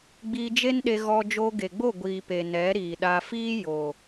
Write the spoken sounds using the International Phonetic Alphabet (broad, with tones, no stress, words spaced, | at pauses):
ɡ͡biː˧d͡ʒe˦nɗe˧ɣɔ˧ d͡ʒoː˧ɡe˨ɡ͡bo˦˨ ɡʷiː˨pe˨ nɛ˨˦ɾiː˨ɗa˧ fiː˦ jo˨